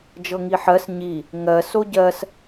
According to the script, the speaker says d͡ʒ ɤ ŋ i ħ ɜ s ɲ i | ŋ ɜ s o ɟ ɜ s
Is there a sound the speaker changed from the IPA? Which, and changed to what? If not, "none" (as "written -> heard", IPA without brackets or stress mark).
none